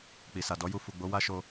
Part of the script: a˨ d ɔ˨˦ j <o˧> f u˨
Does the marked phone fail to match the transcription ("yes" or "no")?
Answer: yes